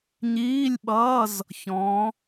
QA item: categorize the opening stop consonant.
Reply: implosive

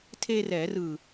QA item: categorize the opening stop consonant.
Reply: aspirated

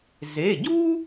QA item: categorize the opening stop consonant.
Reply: plain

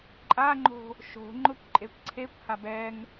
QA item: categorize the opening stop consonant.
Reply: click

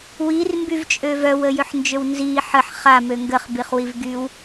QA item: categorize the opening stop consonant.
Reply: plain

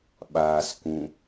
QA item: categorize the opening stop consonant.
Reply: implosive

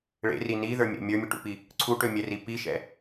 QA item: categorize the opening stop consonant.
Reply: plain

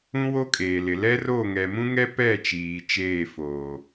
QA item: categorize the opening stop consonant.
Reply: ejective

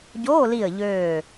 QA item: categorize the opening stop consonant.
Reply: plain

